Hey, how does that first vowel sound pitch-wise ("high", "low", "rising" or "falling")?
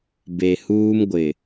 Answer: low